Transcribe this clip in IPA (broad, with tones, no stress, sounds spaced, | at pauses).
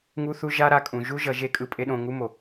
ŋ u˦ θ u˦ ʒ a˦ ɾ a˧ kʼ ũ˨ ʒ u˦ ʒ ʌ˨˦ ʒ e˦ kʼ ɯ˧ pʼ e˦ ɗ õ˧ ŋ u˦ m o˨